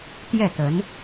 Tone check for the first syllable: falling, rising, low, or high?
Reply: falling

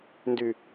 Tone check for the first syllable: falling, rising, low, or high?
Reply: low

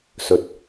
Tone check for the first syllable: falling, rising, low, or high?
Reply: low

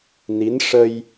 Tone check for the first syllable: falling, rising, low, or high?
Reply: rising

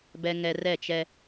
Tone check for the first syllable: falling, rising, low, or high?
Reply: high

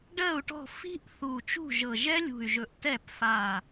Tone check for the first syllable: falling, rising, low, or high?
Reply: falling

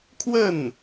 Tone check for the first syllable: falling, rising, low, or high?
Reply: falling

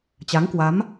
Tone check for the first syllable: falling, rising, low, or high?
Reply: rising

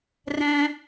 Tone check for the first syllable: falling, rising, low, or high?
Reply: high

